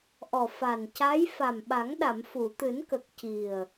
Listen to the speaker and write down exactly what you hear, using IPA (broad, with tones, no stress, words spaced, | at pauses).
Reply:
ʔɔ˨˩ fa˨˩n ca˧˥j fa˨˩mɓa˨˩˦ŋɗa˨˩˨m fu˨˩˨t̪ɨ˨˩˦nkə˨˩k̚ ci˨˩ə̯